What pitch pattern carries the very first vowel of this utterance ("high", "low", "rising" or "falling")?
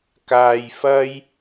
low